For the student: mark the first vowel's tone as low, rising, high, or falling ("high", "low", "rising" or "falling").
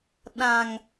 low